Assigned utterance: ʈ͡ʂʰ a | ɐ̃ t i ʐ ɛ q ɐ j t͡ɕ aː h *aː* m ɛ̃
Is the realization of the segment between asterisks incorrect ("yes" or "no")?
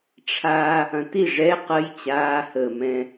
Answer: yes